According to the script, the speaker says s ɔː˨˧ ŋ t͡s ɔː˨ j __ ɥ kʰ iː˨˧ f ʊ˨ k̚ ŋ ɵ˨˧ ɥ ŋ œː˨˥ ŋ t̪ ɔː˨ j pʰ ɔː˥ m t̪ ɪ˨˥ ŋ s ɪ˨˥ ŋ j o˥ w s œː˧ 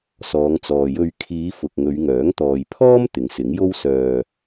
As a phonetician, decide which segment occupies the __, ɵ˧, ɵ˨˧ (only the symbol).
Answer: ɵ˧